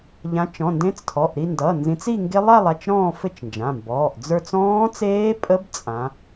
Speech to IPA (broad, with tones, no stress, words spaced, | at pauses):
ʎã˨˦t͡ʃɔ̃˩˧˩ndẽ˦˥t͡stʰɔ˩˧˩ʔ ɾi˥˧ndʌː˩˧˩nzĩ˨˦t͡s i˥˧ŋɡe˦˥lˠa˥˧lˠ a˥˧t͡ʃɾɔ̃ː˥˧fɘ˥˧t͡ʃnd͡ʒã˩˧˩ mbɔː˩˧˩ʔd͡zə˞˥˧t͡s ɔ̃ː˦˥t͡seː˦˥pʼə˦˥b t͡sʼã˨˦